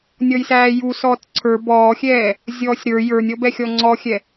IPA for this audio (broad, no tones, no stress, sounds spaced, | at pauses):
nʲ ɔ j s æː j u s ɔː t ǀʰ ə˞ b ɔː xʲ ɛː | zʲ ɔː sʲ ɾ ə˞ j ə˞ nʲ ɔ b ɛ xʲ ɔ ŋ͡ǀ ɔ xʲ ɛ